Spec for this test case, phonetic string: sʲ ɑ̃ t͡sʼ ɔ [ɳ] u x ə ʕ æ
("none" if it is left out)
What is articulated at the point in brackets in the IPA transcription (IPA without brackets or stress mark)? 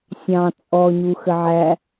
ɲ